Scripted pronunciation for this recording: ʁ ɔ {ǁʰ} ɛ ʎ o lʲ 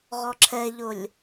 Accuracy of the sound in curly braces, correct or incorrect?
correct